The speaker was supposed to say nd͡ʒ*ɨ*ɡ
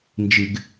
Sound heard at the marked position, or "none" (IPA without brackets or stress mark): ɨ